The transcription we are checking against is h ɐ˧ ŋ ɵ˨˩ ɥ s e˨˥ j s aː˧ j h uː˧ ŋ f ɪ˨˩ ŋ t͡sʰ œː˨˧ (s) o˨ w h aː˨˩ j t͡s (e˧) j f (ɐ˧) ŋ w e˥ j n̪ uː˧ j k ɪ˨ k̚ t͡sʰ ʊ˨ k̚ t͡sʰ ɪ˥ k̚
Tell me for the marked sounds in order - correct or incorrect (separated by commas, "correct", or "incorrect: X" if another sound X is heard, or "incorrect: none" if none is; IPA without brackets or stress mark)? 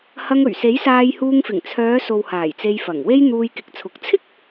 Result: correct, correct, incorrect: ɐ˨˩